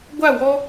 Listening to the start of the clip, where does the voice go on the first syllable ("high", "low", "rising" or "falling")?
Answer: falling